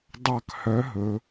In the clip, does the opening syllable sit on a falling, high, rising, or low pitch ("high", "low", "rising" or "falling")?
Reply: falling